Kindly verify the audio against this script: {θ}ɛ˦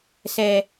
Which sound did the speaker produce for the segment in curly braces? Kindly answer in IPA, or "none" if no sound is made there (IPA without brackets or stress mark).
s